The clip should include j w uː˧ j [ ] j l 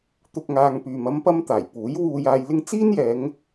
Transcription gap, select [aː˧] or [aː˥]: aː˧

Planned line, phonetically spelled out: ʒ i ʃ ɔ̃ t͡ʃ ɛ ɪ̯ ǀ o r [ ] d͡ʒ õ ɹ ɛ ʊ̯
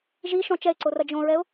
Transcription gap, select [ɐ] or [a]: ɐ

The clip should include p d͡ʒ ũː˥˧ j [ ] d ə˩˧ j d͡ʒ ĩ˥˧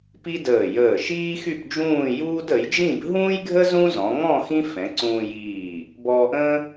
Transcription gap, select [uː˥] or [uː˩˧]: uː˥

